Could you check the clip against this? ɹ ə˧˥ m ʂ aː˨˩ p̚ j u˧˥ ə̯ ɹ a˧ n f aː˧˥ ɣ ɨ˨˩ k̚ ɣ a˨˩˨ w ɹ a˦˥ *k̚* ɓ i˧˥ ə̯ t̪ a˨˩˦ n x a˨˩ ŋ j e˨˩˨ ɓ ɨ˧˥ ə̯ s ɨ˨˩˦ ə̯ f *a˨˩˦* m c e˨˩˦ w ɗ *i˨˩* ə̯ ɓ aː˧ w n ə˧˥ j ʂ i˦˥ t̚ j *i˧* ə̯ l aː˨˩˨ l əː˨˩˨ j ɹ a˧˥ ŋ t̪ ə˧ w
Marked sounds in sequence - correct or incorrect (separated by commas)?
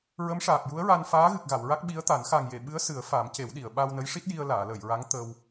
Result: correct, correct, incorrect, correct